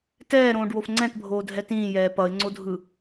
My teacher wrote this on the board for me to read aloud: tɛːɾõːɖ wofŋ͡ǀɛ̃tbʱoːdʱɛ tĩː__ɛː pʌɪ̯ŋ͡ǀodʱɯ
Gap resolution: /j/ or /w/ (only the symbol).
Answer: j